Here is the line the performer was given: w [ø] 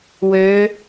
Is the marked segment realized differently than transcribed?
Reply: no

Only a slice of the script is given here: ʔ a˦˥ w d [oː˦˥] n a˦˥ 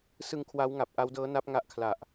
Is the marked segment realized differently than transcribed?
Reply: yes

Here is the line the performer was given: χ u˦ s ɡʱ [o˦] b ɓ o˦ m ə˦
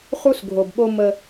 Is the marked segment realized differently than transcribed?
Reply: yes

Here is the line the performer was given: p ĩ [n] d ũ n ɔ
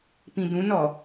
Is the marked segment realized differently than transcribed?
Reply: yes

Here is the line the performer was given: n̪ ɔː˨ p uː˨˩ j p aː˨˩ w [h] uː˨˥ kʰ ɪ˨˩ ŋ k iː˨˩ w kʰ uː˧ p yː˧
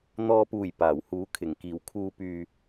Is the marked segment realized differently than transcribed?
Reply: no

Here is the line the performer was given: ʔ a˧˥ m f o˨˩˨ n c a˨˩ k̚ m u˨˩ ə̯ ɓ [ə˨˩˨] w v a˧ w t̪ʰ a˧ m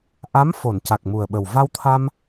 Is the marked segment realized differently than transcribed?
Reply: yes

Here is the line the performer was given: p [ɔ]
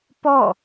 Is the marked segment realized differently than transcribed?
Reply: no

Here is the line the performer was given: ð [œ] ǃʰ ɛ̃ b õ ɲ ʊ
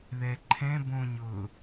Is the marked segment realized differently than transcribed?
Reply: yes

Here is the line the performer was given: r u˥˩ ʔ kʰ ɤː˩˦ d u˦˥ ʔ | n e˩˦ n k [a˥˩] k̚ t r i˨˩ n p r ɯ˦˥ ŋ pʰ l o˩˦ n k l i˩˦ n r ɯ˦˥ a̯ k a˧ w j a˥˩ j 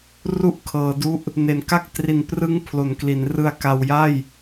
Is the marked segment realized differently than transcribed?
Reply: no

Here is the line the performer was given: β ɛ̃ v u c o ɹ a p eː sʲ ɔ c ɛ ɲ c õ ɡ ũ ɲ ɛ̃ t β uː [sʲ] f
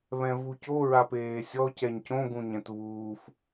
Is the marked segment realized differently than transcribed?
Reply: yes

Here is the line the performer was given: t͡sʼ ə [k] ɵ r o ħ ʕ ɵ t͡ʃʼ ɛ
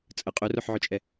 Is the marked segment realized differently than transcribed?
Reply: yes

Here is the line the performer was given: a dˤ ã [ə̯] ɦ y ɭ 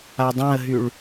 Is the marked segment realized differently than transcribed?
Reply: no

